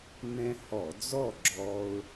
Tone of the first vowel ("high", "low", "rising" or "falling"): high